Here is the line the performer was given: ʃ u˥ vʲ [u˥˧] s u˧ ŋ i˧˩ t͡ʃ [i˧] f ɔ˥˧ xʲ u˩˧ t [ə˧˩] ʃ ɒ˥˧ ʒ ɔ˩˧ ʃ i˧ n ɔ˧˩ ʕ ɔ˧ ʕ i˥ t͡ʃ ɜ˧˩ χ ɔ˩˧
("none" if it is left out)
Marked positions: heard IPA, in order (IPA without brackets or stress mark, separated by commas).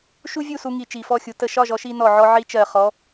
u˥˧, i˧˩, ə˧˩